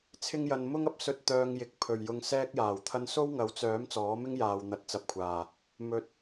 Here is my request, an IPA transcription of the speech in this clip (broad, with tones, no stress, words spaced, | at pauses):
t͡sʰɪ˥ŋjɐ˧n mʊ˥ŋɐ˨˥p̚sɵ˧t̚ t̪œː˧ŋjɪ˨k̚ pʰɵ˨˩ɥ jʊ˧ŋsɛː˥k̚jaː˨˩wt̪ʰɐ˥n so˥wŋɐ˨˥wt͡sœː˨˥m t͡sɔː˨˥mɪ˥ŋjaː˨w n̪ɐ˨˥t̚t͡sɐ˨p̚kʷʰaː˨˩ | mɵ˨t̚